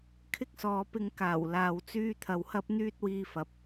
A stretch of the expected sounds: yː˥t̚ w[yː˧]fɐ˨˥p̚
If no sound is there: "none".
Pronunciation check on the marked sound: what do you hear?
iː˧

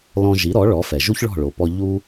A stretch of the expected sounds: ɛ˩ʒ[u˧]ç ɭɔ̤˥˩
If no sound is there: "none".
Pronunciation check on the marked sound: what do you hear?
u˥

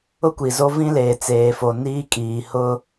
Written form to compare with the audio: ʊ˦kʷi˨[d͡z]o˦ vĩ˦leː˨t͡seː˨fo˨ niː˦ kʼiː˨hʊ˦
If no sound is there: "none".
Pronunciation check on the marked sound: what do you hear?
z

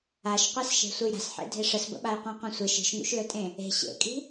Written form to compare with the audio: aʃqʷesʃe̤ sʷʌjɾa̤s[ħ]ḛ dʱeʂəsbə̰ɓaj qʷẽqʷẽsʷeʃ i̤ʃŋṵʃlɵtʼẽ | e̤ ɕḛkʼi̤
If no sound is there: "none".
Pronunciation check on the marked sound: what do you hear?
ħ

